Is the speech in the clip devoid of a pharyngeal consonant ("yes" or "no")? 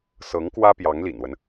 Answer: yes